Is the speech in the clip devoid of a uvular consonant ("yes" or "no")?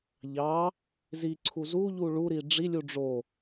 yes